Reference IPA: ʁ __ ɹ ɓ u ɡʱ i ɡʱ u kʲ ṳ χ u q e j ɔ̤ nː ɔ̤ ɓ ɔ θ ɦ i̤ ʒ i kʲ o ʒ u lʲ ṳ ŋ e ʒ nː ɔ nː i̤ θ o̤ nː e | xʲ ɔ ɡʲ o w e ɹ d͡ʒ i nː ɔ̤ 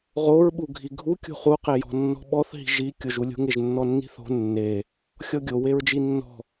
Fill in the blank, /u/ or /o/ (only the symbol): o